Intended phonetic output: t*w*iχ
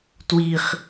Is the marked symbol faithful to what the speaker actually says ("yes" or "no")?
yes